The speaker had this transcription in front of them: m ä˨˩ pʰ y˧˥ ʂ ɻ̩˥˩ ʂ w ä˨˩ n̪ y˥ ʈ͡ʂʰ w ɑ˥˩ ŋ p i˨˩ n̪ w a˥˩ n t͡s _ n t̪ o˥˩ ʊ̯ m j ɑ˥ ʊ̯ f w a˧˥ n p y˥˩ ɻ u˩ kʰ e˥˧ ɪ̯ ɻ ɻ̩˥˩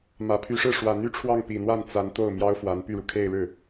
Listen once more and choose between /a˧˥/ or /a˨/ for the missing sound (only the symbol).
a˧˥